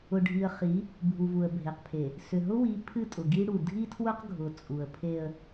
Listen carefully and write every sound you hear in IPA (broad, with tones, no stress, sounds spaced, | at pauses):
ʊ˨ ɖʱ i˨ ə̯ χ i˨˦ | bʱ u˨ v u˨ ə̯ bʱ e˨ q pʰ e˨ | s ʏ˨ ɦ ʊ˦ w i˨˦ pʰ ɨ˦˨ tʼ ʊ˨ ɡ i˦ ɽ u˨ dʱ i˦ tʰ w ʊ˦ q ɡʱ ʊ˨ t͡sʼ u˨ ə̯ pʰ e˦ ə̯